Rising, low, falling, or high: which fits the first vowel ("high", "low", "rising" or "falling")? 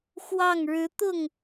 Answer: falling